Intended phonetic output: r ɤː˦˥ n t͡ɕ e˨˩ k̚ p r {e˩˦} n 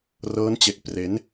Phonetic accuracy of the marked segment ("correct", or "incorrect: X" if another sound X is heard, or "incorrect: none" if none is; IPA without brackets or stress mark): correct